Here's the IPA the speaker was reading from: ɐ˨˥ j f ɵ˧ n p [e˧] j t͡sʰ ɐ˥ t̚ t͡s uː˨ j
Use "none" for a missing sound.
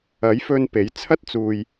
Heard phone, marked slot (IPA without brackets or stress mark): e˨˥